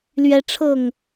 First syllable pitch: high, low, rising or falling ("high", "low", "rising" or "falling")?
high